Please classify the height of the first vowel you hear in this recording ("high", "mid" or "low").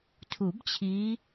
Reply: high